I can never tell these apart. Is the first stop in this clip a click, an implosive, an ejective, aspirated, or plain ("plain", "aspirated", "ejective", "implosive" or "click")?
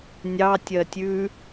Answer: plain